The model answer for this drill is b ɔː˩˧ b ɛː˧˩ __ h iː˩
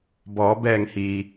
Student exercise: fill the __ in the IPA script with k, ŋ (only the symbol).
ŋ